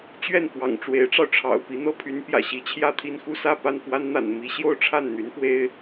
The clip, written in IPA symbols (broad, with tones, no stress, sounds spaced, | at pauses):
t͡ɕ ɥ ɛ˥˩ n f w ɑ̰˨˩ ŋ ʈ͡ʂ w e˧˥ ɪ̯ ʈ͡ʂ ɑ˧ ʊ̯ ʈ͡ʂʰ ɑ̰˨˩ ʊ̯ p i˧˥ n̪ ɤ˥ pʰ y˧˥ n p j ä̰˨˩ ɕ i˧˥ t͡ɕʰ j ä˥˧ t̪ʰ i˥˧ n x u˥˧ s ä˥˧ p a˥˩ n f w a˥ n n̪ a̰˨˩ n m i˧˥ ɕ j o˥˧ ʊ̯ ʈ͡ʂʰ a˥˩ n n̪ y˧˥ n f w e˥ ɪ̯